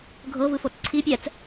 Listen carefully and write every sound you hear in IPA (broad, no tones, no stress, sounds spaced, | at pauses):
ɡʱ ɤ v ɯ f o t͡s ǀʰ i pʲ ɛ t͡s